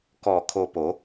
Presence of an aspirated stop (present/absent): present